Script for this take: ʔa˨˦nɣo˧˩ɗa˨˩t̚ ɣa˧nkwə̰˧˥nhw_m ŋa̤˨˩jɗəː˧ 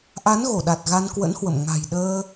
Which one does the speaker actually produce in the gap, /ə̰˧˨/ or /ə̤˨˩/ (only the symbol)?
ə̰˧˨